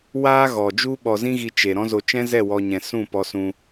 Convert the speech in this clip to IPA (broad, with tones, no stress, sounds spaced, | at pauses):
w aː˦ ɣ ɔ˨ d͡ʒ u˦ ɓ ɔ˧ z ĩ˦ ɣ i˧ t͡ʃ e˨ ɾ ɔ̃˦ z o˧ t͡ʃ ɛ̃˦ z ɛ˦˨ w ɔ˧ ɲ ɛ̃˨ s ũ˦˨ p ɔ˧ s ũ˧